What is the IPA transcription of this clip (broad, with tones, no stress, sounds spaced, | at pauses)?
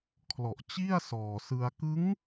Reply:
kʰ l ɔ˨˩ ʔ t͡ɕ i˥˩ a̯ s ɔː˨˩ s ɯ˧ a̯ k ɯ˦˥ ŋ